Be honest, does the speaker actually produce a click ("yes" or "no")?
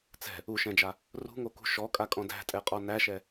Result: no